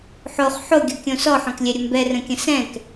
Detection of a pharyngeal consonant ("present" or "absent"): present